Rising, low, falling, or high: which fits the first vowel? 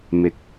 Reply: low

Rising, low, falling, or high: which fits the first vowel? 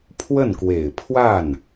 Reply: falling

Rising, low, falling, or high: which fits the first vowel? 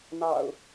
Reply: low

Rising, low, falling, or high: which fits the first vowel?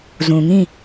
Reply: low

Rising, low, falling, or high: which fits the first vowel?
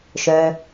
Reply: low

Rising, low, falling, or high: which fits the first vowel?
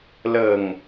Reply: low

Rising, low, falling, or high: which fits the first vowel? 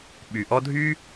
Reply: low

